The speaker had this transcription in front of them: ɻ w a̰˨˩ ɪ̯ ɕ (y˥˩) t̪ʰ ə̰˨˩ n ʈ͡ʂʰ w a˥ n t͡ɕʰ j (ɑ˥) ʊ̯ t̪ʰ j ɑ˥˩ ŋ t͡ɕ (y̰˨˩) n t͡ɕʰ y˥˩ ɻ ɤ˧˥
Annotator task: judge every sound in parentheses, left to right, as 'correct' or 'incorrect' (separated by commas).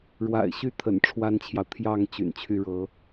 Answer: correct, incorrect, correct